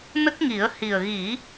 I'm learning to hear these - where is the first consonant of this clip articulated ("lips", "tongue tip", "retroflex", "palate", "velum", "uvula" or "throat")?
tongue tip